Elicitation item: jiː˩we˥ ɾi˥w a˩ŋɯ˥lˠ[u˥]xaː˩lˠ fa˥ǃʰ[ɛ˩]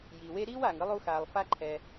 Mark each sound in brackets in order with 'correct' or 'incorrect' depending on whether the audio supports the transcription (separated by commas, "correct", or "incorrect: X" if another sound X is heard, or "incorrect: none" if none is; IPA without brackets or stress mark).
correct, correct